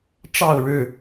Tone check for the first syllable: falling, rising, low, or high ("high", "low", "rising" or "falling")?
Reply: falling